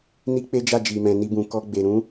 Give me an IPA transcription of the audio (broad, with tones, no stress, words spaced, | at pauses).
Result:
ni˦k͡pe˦d͡ʒa˦˨ d͡ʒi˨mɛ̃˨ni˧ bũ˨ kɔ˧ɡ͡be˨ ɾũ˨˦